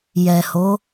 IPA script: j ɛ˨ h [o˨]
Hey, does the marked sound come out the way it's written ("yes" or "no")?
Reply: no